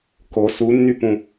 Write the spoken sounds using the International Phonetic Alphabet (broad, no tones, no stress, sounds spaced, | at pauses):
k o s u nː y p ũ